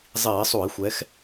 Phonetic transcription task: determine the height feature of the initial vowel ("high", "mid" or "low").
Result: high